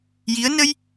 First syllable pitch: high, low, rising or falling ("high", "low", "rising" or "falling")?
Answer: rising